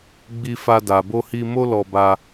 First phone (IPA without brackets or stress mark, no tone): ɡ͡b